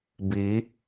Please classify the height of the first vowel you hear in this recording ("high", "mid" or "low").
high